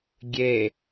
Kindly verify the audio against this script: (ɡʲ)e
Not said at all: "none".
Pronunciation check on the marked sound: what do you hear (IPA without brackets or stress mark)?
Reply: ɡʲ